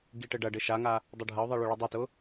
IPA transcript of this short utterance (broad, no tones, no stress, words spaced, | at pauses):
ɡiʈɘɖɐɖɘ ʃaŋa | dˤɯɖʱɐʊ̯ðˤi ɭʊɭɯdˤitʊ